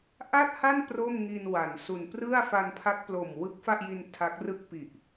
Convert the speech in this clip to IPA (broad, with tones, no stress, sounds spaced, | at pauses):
ʔ a˥˩ t̚ h a˥˩ n p r o˥˩ m ŋ i˧ n w a˩˦ n s u˨˩ n p r ɯ˥˩ a̯ f a˧ n pʰ a˦˥ k̚ p l o˨˩ m w ɯ˦˥ k̚ f a˥˩ ʔ j i˧ n tʰ a˦˥ k̚ r ɯ˥˩ k̚ p i˨˩ ʔ